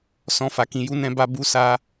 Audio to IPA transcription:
s ɔ̃˧ f a˨ k ĩ˧ j u˦ n ɛ̃˦ b a˦ b u˦ s a˦

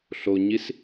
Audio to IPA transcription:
ɬ o ɲ i s

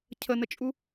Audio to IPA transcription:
cʰ ə n ə t͡ʃʼ u

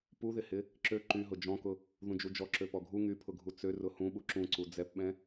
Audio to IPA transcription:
p u ð ɪ h ɪ | ǁ ø ǃ y ɦ ʊ d͡ʒ ɔ̃ k ʊ | ð ũ d͡ʒ u d͡ʒ ɔ ǁ ø p ɔ ɡʱ u ŋ y pʰ ʊ ɡʱ u t͡s ø r ʊ h ũ ɓ u ǁ ũ ǀ u d͡z ɛ p ɓ ɛ̃

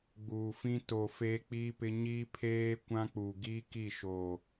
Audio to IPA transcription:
ɡ͡b uː˨ f ĩ˦ t o˨ f eː˦ k͡p iː˦ p ɪ˦ ɲ i˦ pʰ eː˦ kʷ ã˦ k͡p u˨ ɡ i˦ k i˦˨ ʃ o˨

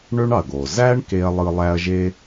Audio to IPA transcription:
ɳ ø˥ ɳ ɑ˩ ɐ̯ ɡ o˩ z æ˥ ɳ k e˥ ɐ̯ lˠ ɯ˦ lˠ æ˦ ɐ̯ ʒ e˥

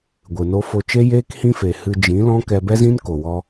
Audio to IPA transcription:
ɡʷ ɨ˨ n o˦ f o˧ t͡ʃ e˦ j eː˦ k h ĩ˦ f e˨ h ɨ˧ d͡ʒ ĩ˨˦ l ɔ̃˦ k ɛ˧ b ɛ˦ z ĩ˦ n k o˨ w ɔ˧

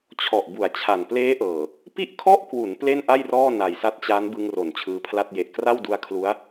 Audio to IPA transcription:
t͡ɕʰ ɔ˨˩ ʔ b u˩˦ a̯ t͡ɕʰ a˨˩ n p l eː˦˥ ʔ ɤː˨˩ | p i˥˩ ʔ kʰ ɔ˥˩ ʔ k w u˩˦ n p l e˥˩ n ʔ a˥˩ j r ɔː˥˩ n a˨˩ j s a˦˥ t̚ t͡ɕ a˦˥ n b ɯ˧ ŋ r o˩˦ n t͡ɕʰ ɯː˧ pʰ l a˥˩ t̚ j e˨˩ ʔ k r a˥˩ w d u˦˥ a̯ kʰ l u˦˥ a̯

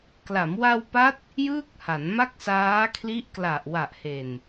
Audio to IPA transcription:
k l a˩˦ m w a˧ w p a˦˥ t̚ | j ɯː˥˩ k̚ h a˩˦ n m a˥˩ k̚ s aː˦˥ kʰ l i˦˥ ʔ k l a˨˩ ʔ w a˨˩ ʔ h e˨˩ n

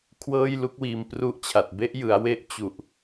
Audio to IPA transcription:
kʰ w ɤː˥˩ j l u˦˥ k̚ w iː˧ m p r u˥˩ ʔ t͡ɕʰ a˨˩ t̚ b e˥˩ ʔ j ɯ˩˦ a̯ w e˥˩ ʔ t͡ɕ u˨˩ ʔ

